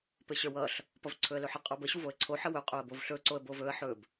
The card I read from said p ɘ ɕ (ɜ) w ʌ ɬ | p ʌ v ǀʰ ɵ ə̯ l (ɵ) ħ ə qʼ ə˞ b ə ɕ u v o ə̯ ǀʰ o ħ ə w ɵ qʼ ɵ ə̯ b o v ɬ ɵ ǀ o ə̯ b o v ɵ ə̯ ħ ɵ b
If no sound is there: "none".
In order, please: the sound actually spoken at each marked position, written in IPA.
ə˞, ɵ

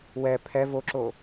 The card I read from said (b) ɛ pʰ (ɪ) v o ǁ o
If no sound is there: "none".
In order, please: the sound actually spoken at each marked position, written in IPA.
w, ɛ

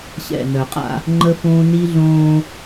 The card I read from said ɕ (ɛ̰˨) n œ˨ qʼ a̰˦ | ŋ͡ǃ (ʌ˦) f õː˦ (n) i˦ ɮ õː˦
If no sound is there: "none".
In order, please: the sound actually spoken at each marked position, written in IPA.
ɛ̰˨, ə˦, n

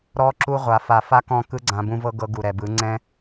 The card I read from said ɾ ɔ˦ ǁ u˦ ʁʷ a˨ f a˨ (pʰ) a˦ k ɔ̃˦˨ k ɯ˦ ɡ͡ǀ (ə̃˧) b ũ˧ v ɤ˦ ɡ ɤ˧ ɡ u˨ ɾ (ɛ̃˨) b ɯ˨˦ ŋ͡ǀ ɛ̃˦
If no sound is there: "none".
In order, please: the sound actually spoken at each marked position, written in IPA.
f, ã˧, ɛ˨

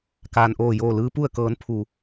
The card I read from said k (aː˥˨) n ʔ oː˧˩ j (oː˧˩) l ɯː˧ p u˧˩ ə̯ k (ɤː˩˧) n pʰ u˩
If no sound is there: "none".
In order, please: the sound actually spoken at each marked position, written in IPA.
aː˩, oː˧˩, ɤː˩˧

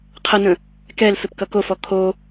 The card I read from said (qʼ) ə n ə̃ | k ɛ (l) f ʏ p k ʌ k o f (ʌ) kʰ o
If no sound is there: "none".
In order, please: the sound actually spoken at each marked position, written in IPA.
qʰ, l, ɔ

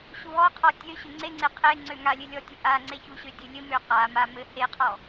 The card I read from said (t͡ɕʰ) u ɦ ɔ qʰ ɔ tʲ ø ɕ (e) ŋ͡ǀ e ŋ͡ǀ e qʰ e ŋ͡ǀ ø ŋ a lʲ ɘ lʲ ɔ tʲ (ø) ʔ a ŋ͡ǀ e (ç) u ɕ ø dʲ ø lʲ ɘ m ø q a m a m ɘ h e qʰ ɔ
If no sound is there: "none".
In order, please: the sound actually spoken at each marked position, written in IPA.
ɕ, ø, ɘ, ç

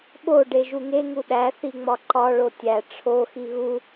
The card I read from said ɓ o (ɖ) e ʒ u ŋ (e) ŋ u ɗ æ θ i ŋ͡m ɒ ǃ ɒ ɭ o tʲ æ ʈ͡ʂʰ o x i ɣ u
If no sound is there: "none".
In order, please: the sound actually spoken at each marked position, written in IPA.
ɖ, e

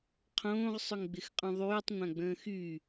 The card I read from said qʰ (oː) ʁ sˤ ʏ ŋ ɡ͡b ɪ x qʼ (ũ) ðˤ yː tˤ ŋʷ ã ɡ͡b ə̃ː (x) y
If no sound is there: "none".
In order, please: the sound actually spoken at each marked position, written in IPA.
õː, ũ, x

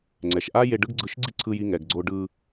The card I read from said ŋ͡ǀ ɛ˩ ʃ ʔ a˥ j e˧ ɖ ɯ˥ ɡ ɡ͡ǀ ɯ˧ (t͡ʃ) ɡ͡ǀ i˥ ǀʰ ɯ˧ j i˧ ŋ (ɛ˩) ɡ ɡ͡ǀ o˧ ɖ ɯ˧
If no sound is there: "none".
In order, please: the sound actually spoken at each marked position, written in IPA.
ʃ, ɛ˩

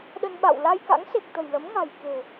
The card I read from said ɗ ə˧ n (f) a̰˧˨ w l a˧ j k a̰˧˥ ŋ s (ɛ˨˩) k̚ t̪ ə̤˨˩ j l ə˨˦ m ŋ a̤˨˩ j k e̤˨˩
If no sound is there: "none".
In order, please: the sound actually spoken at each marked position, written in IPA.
ɓ, e˨˩

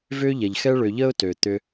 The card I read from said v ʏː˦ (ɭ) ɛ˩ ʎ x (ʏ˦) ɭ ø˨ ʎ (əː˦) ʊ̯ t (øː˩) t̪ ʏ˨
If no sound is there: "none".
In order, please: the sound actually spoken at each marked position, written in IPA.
ʎ, ɛ˦, əː˥, øː˩

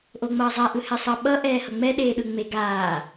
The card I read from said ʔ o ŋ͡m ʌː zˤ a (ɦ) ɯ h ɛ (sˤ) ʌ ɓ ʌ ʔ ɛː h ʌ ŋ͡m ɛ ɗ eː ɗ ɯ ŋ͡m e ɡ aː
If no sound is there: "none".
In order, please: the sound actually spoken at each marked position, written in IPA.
ʔ, sˤ

